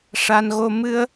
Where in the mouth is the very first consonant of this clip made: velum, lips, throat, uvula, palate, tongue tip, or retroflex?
retroflex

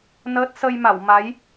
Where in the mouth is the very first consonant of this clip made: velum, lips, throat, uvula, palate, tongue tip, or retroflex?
tongue tip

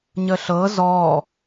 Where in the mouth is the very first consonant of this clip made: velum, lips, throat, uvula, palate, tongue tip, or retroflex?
palate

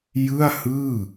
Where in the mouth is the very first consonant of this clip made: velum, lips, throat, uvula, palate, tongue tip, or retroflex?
palate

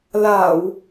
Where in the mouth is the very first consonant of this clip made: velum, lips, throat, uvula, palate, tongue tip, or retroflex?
tongue tip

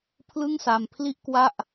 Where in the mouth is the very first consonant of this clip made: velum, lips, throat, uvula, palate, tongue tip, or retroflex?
lips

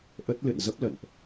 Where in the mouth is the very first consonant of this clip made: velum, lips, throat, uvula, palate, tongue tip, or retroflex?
throat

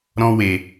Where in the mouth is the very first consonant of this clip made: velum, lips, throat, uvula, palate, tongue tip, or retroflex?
tongue tip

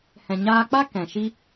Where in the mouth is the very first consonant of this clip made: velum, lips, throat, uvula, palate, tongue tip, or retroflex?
throat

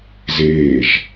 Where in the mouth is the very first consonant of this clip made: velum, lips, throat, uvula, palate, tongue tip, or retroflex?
tongue tip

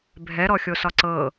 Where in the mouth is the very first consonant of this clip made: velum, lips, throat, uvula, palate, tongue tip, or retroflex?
lips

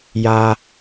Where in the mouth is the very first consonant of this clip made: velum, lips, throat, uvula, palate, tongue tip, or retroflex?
palate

